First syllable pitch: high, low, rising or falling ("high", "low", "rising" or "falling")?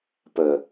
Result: low